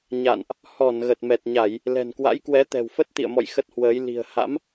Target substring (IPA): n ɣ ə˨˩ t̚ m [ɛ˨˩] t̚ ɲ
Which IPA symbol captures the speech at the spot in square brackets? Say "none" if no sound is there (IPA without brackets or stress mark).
ɛ˨˩